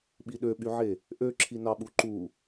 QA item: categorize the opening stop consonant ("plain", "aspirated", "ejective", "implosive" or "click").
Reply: implosive